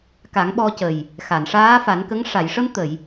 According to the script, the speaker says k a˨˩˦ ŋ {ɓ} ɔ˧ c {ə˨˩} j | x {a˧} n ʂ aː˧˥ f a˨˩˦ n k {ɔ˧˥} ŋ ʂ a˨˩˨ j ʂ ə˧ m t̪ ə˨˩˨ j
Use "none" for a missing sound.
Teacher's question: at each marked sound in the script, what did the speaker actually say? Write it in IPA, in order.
ɓ, ə˨˩, a˨˩˨, ə˧˥

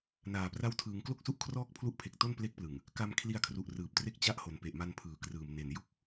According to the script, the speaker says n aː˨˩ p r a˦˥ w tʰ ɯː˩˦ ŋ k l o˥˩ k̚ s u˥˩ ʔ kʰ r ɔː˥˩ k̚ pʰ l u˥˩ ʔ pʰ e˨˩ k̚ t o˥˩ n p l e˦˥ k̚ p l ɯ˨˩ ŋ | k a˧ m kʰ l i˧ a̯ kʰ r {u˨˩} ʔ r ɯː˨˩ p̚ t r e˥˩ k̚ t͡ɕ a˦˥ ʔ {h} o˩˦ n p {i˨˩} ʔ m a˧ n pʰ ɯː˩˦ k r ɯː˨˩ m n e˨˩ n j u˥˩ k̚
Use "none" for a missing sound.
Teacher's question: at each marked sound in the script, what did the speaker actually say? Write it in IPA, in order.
u˨˩, h, e˨˩

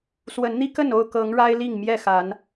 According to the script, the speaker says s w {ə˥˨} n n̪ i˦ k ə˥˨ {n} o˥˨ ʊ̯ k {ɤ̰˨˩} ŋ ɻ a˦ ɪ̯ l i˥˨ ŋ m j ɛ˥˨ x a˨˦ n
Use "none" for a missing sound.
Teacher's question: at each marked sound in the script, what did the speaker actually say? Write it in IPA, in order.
ə˨˦, n, ɤ˨˦

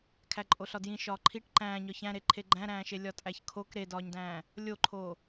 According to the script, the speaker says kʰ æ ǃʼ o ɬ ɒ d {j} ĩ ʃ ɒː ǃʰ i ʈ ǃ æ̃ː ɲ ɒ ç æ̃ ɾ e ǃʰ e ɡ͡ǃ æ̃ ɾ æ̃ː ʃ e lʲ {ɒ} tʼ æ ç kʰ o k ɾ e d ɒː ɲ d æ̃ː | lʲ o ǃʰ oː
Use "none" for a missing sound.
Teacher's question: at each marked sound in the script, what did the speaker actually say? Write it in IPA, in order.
j, ɒ

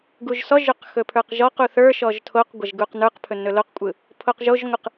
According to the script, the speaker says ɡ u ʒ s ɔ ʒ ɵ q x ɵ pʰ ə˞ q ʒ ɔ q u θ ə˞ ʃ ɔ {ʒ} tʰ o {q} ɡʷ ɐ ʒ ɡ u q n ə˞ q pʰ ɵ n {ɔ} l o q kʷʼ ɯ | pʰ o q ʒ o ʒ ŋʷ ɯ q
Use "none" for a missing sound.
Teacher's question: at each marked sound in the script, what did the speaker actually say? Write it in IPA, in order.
ʒ, q, ɵ

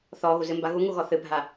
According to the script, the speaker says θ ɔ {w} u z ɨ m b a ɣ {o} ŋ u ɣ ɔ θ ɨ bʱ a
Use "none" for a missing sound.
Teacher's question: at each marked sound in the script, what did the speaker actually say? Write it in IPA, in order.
ɣ, u

